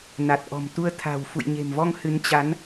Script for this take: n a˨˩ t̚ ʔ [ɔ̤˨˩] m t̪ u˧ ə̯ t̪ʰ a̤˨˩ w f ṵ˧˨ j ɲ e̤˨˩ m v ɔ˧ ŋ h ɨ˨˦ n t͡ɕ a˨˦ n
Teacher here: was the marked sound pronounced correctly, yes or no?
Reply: yes